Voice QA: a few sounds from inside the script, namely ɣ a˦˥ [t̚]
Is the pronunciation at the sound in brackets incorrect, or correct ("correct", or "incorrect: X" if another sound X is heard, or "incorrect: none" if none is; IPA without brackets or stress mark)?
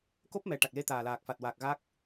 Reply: incorrect: k̚